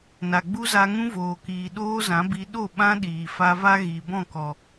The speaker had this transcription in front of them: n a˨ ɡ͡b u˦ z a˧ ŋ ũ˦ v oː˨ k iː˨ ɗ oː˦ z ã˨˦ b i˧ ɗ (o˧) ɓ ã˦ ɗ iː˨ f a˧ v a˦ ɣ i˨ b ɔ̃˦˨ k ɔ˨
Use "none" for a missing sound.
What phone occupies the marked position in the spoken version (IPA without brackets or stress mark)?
o˦˨